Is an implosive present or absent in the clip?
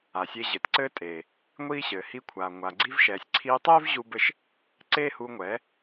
absent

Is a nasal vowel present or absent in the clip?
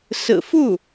absent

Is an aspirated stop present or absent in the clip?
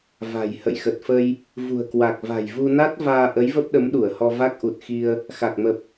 absent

